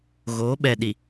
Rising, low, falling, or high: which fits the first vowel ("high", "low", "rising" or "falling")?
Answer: rising